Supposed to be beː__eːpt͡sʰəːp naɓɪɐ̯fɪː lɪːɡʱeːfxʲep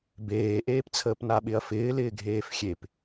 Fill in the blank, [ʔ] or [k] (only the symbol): ʔ